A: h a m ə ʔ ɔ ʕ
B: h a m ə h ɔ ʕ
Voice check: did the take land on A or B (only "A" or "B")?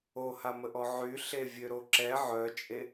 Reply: A